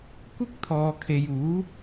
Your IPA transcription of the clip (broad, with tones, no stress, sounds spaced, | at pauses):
kʷ ɪ˥ k̚ t̪ʰ ɔː˨ kʰ e˨ j uː˨˥